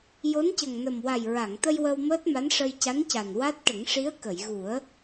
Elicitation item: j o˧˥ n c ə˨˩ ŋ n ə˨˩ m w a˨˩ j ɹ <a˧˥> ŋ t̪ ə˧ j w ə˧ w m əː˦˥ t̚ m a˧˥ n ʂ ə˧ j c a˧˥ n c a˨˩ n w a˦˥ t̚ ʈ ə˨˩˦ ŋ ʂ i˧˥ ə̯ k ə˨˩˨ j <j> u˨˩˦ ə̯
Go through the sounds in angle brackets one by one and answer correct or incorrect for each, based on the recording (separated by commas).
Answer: incorrect, incorrect